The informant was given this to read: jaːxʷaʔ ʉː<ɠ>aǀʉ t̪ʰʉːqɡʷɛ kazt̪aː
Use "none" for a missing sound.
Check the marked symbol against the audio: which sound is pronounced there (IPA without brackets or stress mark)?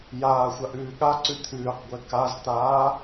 ɠ